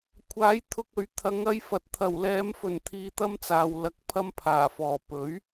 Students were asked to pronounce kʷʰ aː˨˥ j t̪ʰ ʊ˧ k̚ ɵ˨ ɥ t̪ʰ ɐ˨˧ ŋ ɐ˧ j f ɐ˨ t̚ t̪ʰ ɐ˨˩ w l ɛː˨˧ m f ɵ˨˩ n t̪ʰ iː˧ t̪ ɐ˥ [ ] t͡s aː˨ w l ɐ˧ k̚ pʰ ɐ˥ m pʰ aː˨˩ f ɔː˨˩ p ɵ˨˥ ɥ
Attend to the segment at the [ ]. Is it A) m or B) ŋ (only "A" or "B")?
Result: A